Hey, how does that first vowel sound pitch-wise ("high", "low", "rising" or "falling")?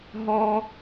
high